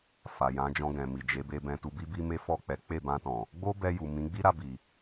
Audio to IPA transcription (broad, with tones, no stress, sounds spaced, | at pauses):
f a˨ j ã˨˦ d͡ʒ ɔ̃˧ ɡ ɛ̃˨ m i˨ d͡ʒ e˨˦ b e˧ b ɛ̃˧ t u˧ b i˦ b i˦ m e˦ f ɔ˦˨ k͡p ɛ˨˦ k͡p e˦˨ b ã˧ t ɔ̃˨ | ɡ͡b o˦ b ɛ˧ j u˨ m ĩ˨˦ ɡ͡b i˦ ɾ a˧ b i˨